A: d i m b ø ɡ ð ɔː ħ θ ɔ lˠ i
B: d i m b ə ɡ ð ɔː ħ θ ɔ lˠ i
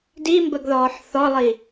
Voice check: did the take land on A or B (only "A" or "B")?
B